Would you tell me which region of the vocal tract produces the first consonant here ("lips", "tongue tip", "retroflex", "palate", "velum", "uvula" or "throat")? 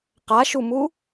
uvula